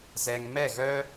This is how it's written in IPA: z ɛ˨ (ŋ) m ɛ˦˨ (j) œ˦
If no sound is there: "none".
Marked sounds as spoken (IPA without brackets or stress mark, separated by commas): ŋ, ɣ